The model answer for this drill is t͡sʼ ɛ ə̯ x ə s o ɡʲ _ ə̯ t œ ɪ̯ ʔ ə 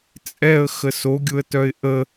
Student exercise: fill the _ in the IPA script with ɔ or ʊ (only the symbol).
ʊ